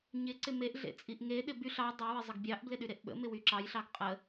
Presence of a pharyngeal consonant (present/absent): absent